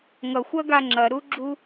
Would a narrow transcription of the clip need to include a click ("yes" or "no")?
yes